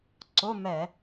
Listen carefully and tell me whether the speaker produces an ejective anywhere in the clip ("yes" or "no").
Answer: no